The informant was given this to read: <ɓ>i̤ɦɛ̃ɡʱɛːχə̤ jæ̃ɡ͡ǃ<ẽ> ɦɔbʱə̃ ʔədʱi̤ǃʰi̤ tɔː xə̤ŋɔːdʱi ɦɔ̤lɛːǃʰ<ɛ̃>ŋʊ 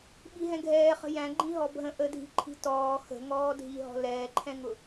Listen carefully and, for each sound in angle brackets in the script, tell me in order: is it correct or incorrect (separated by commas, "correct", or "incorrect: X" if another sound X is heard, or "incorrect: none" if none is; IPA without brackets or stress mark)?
correct, incorrect: ĩ, correct